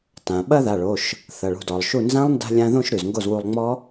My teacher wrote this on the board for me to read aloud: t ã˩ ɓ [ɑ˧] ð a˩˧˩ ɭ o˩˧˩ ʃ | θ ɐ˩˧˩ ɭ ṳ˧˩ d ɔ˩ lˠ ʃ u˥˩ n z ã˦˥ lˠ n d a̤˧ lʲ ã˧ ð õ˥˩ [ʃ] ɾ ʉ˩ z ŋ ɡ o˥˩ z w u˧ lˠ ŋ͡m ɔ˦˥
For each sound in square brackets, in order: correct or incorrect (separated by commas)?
incorrect, correct